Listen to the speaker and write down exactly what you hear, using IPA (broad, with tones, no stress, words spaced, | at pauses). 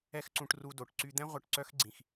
ɛ˦xǀũ˧ʈru˧do˨ʈ ǀy˦ d̪ɛ̃˦ ʁʷœ˧ʈǀœ˦xɡ͡ǀĩ˨x